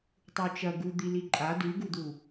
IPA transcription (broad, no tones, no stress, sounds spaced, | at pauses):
tˤ u t͡ʃ ɐ ɡ u d̪ i l i ǃʼ a d ʉ ɡ u d̪ u